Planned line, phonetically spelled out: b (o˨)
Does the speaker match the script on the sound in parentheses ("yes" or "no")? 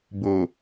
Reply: yes